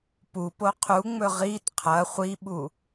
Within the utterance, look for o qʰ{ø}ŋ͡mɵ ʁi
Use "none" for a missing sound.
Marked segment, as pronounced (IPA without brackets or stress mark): u